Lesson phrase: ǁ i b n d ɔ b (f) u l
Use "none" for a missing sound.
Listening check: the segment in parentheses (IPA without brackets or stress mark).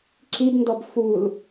f